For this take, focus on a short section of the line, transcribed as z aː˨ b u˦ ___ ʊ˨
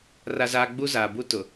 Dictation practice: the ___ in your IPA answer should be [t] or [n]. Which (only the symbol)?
t